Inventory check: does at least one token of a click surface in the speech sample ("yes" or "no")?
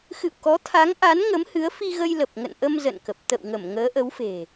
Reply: no